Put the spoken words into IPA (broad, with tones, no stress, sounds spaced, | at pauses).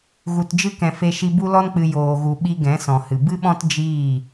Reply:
ɣ u˧ t d͡ʒ ɨ˦ k ɛ̃˧ f e˦ ʃ i˦ b u˦ l ɔ˦ n k͡p ɨ˧ j oː˧ ɣ u˧ ɓ i˧ ɡ ɛ̃˨˦ s ɔ̃˨ h ɨ˨ b ɨ˦ ɓ ɔ̃˦ t d͡ʒ iː˦˨